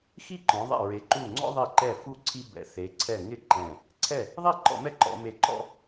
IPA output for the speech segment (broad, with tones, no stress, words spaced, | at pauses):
xi˥˩ǃɔ̃˩˧ðˤɛ̰˧˩ ɹe˩˧ǃu˧˩ ŋ͡ǀɔ̰˦ðˤi˧˩ǃɛ˧˩ fu˥˩ǀʰi˦ bɛ̰˩˧θe˩˧ǀʰɛ˧˩ŋɪ˥˩ ǃɛ̃˧˩ | ǀʰɛ˥˩ | ðˤi˥˩ǃɔ̰˧˩˧mɛ˦ ǃɔ̰˩˧me˧˩ǃɔ̰˦